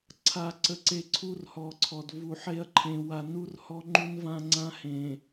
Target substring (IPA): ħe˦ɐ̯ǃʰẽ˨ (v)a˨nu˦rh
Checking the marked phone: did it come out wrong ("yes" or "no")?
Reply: yes